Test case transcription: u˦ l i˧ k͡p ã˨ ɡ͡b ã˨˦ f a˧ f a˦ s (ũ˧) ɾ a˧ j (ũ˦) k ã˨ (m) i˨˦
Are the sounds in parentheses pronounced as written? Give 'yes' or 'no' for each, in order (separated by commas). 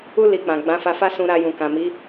yes, no, yes